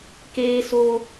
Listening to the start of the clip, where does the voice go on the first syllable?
high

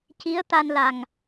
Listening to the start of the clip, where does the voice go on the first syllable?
rising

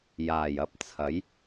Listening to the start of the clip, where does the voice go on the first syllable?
low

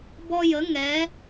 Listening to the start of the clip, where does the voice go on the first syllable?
high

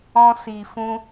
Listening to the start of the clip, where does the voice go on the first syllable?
high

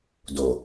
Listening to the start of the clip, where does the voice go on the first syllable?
low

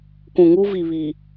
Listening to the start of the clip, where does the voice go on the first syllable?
low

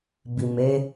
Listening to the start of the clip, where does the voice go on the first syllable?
low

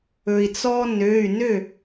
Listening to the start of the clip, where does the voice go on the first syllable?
low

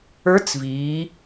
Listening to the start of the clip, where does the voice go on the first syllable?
rising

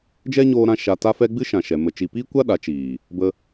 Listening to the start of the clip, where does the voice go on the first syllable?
high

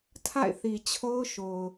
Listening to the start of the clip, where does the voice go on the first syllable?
falling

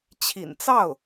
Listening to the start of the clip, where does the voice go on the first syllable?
low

